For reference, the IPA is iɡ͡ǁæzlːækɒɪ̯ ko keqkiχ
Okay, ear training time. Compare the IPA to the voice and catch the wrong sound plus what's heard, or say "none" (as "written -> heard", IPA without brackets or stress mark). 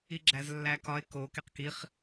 none